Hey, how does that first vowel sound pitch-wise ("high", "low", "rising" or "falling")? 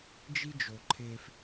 high